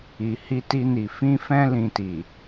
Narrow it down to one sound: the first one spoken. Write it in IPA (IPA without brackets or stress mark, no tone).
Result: i